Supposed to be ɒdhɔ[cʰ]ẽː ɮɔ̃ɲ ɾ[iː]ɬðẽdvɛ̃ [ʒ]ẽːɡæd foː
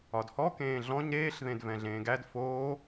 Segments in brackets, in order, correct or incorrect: incorrect: k, incorrect: eː, incorrect: ɮ

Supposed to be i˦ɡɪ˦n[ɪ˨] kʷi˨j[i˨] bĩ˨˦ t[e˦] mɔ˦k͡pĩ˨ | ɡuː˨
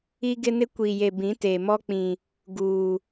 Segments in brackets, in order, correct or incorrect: incorrect: ɪ˦, incorrect: e˨, incorrect: e˨

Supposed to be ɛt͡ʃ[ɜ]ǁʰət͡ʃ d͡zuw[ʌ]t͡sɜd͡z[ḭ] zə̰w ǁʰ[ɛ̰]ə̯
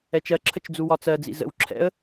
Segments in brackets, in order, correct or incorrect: correct, incorrect: ɒ, correct, correct

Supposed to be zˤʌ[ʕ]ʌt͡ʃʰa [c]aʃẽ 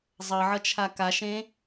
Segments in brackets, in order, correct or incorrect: correct, incorrect: k

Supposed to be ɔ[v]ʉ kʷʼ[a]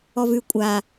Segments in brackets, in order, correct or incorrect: correct, correct

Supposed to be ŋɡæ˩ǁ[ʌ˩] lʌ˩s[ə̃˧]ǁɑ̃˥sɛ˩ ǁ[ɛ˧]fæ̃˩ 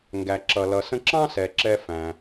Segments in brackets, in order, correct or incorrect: correct, correct, correct

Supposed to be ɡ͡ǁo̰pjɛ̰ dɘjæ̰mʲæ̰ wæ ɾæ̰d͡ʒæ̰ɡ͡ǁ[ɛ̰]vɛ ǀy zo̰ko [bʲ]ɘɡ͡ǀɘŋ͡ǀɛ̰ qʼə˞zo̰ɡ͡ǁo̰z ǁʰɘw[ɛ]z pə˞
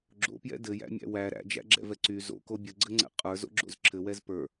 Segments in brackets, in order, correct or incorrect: correct, correct, correct

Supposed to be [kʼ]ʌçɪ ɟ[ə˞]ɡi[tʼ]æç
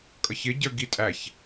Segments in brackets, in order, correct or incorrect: correct, correct, correct

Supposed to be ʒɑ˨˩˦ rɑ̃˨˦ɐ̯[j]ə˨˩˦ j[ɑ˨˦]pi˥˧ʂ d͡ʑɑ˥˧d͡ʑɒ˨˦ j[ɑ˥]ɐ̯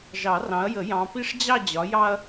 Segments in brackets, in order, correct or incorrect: correct, incorrect: ɑ̃˨˦, correct

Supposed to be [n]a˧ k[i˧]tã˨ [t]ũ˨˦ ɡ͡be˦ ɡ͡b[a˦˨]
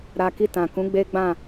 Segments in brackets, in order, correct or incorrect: incorrect: ɾ, correct, incorrect: k, incorrect: ã˦˨

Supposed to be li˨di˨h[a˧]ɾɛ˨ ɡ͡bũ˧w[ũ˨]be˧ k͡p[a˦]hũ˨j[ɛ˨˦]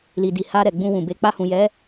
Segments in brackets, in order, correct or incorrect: correct, correct, incorrect: a˧, correct

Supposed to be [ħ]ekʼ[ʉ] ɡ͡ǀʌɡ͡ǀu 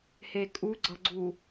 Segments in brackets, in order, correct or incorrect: incorrect: h, incorrect: u

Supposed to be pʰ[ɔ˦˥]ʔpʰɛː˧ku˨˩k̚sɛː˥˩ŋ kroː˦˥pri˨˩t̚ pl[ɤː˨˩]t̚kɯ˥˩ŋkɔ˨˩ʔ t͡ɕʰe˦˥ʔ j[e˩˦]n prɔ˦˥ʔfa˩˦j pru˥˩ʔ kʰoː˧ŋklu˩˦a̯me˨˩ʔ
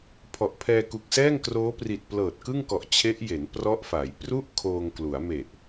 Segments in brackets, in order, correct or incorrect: incorrect: ɔ˨˩, correct, correct

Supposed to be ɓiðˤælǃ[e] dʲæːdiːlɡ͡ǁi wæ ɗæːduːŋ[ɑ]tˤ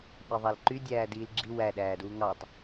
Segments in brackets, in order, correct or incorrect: incorrect: y, correct

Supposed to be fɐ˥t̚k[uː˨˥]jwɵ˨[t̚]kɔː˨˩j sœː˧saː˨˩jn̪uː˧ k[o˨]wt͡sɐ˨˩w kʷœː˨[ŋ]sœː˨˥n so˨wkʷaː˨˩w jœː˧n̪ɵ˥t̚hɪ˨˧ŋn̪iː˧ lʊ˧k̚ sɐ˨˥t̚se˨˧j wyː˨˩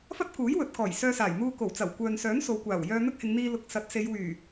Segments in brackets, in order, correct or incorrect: correct, correct, incorrect: o˨˩, incorrect: n

